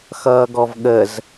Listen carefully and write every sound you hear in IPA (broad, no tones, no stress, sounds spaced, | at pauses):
x ʌː ɡ ɔ v ɠ ə z